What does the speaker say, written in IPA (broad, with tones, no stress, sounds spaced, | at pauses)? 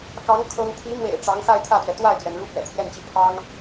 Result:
k ɑ˧˥ ŋ kʰ ɤ˥ ŋ t̪ʰ i˧˥ m w ḛ˨˩ ɪ̯ ʈ͡ʂ ɑ˧˥ ŋ x a˥˧ ɪ̯ t̪ʰ ä˥˩ t̪ ɥ ɛ˩ t̪ w a˥˩ ɪ̯ t̪ ɥ ɛ˩ n ɻ u˥ p ɥ ɛ̰˨˩ t̪ʰ j ɛ˥˧ n t͡ɕ i˥˩ pʰ ɑ˥ ŋ